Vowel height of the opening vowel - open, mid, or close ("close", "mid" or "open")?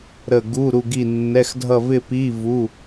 mid